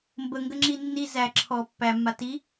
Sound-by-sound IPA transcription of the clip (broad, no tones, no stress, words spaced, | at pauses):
mbəŋɡəŋ͡ǁi nːi zæ ǁʰɔ pːæmːa ti